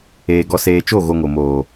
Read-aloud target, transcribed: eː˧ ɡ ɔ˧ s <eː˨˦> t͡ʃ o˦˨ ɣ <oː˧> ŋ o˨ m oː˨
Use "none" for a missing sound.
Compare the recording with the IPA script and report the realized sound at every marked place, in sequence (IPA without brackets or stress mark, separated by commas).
eː˧, o˧